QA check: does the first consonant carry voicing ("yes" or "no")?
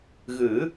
yes